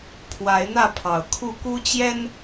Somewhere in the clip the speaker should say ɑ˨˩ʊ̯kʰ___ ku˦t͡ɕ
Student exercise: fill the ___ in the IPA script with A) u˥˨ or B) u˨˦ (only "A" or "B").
A